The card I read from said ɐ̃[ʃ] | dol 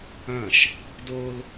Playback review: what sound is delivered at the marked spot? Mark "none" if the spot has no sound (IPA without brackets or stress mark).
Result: ʃ